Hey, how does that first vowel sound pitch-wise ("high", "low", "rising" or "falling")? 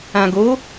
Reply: low